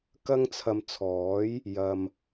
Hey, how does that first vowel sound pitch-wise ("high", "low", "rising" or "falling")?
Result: high